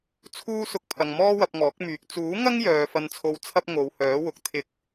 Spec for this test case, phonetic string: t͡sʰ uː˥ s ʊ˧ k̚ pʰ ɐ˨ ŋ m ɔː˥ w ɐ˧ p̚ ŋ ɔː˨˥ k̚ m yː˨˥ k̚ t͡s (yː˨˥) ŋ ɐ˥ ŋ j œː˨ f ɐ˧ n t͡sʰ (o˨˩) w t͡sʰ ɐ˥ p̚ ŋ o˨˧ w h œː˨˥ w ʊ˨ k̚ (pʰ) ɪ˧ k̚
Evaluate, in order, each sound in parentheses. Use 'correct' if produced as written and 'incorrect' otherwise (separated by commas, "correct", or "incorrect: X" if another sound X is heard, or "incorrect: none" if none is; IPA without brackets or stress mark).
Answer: incorrect: uː˨˥, incorrect: o˧, incorrect: t̪ʰ